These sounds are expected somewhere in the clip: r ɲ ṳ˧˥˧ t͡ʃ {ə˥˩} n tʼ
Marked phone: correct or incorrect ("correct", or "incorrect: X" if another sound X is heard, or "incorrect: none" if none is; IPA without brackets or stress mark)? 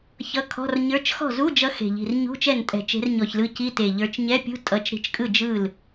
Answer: incorrect: ɛ˥˩